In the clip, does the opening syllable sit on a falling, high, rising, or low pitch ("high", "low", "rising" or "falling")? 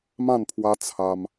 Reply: falling